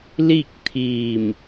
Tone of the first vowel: falling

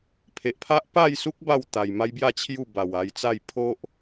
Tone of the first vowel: low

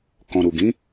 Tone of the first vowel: low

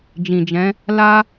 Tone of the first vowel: low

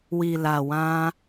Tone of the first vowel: low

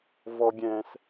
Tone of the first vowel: high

